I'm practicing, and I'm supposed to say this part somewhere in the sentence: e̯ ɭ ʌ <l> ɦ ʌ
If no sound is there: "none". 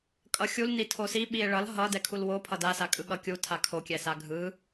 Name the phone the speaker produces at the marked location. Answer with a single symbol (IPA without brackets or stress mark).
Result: l